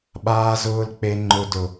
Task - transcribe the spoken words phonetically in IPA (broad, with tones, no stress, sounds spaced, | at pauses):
ɓ aː˦ z ʊː˦ l k͡p e˦ ŋ͡ǃ ʊ˦ d ʊ˦